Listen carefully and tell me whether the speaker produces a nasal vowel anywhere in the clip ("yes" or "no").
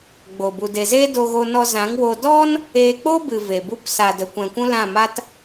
yes